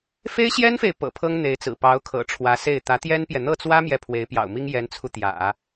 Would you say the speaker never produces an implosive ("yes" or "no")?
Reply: yes